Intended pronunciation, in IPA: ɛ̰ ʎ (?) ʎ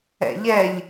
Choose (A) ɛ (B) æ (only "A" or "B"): A